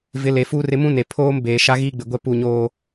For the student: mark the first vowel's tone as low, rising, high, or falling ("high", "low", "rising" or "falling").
rising